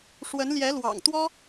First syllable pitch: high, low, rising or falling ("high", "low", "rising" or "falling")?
rising